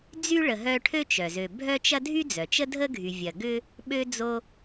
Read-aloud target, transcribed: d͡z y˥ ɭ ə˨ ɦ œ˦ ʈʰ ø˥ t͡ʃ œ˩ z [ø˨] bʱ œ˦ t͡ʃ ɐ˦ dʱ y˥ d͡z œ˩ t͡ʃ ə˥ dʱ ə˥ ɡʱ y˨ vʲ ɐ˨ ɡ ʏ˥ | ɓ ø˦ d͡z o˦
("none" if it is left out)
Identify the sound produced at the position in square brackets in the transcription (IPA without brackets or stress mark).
ø˨